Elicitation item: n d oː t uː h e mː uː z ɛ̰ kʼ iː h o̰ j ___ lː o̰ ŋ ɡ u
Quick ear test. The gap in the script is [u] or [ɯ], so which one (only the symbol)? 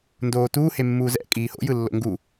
ɯ